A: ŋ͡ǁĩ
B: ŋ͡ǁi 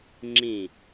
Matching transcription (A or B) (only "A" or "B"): A